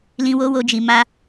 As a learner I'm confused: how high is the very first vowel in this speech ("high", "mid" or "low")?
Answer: high